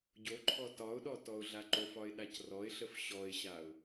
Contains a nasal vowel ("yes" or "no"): no